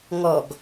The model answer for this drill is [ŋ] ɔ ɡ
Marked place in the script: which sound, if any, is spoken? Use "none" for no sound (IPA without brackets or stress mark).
ŋ